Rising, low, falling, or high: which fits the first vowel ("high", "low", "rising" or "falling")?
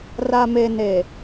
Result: low